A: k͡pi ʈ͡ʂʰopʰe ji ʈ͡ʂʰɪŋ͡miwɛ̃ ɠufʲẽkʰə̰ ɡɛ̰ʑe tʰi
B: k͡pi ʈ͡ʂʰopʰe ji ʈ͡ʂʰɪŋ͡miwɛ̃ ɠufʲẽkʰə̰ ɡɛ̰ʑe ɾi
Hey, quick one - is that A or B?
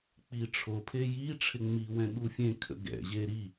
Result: B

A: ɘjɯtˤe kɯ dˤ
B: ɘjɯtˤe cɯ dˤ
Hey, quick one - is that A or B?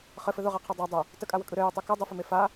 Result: A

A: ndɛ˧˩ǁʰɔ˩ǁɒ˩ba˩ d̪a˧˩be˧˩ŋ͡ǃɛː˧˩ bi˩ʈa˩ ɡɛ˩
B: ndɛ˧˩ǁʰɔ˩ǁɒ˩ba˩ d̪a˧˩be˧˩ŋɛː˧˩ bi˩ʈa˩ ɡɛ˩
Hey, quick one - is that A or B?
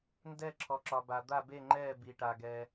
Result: A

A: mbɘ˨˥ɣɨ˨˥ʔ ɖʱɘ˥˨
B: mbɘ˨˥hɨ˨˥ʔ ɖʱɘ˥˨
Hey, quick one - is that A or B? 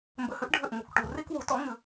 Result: B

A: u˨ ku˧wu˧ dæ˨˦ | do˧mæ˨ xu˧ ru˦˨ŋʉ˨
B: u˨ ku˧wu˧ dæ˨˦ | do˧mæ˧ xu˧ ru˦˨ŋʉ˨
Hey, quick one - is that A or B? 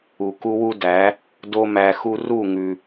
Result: A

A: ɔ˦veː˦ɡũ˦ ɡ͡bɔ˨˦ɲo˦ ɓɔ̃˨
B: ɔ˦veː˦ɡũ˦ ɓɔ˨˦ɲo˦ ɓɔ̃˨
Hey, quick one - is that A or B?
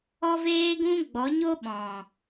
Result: A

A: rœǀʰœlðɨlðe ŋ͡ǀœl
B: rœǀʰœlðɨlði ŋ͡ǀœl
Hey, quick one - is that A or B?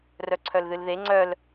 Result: A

